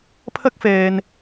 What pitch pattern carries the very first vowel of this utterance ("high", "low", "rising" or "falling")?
high